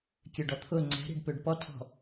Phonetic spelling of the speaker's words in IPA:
kʲ ø ɖ ɔ t̪ʰ ʊ ŋ͡ǀ ɛ̤ ɾ i̤ ɖ p ø ɖ p ɔ tʰ ɔ̤

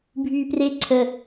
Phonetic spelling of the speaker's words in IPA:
bʱ yː p r e ǀʰ ə

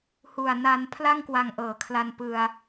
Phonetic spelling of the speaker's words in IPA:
h u˨˩ a̯ n a˧ n pʰ l a˥˩ ŋ k w a˨˩ ŋ ʔ ɤː˩˦ kʰ l a˧ n p ɯ˧ a̯

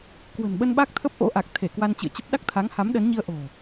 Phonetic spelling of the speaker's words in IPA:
k w ə̤˨˩ n ɓ ə˧ n ɓ a˦˥ k̚ t̪ʰ ə˦˥ p̚ ʔ o̰˧˥ ʔ a˨˩ k̚ t̪ʰ e˧˩ k w a˧ n t͡ɕ ɨ̰˧˨ ə̯ t͡ɕ ə˦˥ p̚ ɗ a˦˥ k̚ t̪ʰ a˨˦ ŋ h a˨˦ m ɗ ə˨˦ n ɲ i˧ ə̯ ʔ o̤˨˩

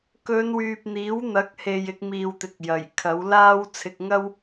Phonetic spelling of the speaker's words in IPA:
k ɵ˨˧ n w yː˨ p̚ n̪ iː˨˥ w n̪ ɐ˨˥ k̚ h e˨ j ɪ˧ k̚ m iː˨ w t̪ ɪ˨ k̚ j ɐ˨˩ j kʰ ɐ˨˥ w l aː˥ w t͡sʰ ɪ˧ k̚ ŋ ɐ˥ w

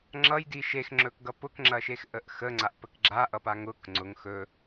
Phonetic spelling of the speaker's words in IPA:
ŋ͡ǁ ʌ j d i ʃ e x ŋ͡ǁ ɵ k ɡ ʌ p ʊ k ŋ͡ǁ ɐ ʃ e x ʔ ə ʔ x ə ŋ͡ǀ a ʔ p ə k ɡ͡ǁ a ʔ ʌ p a ŋ ʊ k ŋ͡ǀ ʊ ŋ x ɵ

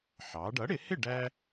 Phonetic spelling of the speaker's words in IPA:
ħ ɑː˩˥ ɖ ʌ˩˥ ɽ ɪ˨˩˦ h ɪ˥˩ ɖ æ˥

